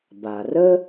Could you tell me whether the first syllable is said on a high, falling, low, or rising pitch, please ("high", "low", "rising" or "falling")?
low